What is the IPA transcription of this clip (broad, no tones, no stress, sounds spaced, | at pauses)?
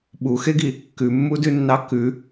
ɓ u x e ɡ i | k ʉ mː u d ʉ nː ɑ k ʉ